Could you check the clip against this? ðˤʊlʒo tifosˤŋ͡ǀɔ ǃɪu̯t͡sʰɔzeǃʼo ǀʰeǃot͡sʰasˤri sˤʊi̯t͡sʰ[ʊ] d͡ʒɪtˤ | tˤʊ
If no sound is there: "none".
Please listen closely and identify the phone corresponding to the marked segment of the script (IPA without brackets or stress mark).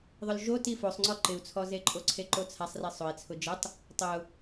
ʊ